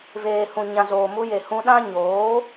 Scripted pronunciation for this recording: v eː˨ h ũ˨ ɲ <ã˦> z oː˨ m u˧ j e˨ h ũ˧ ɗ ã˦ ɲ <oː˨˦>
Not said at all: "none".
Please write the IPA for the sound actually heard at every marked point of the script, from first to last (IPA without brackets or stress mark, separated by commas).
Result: ã˨, oː˨˦